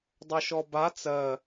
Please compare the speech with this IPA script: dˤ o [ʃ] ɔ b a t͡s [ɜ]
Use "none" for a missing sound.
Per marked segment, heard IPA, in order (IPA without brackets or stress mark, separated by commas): ʃ, ɜ